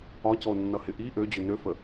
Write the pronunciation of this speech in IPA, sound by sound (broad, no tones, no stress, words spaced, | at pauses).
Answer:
ɒcɔo̯nːʌhɪ ʔi ʔød͡ʑø nøfə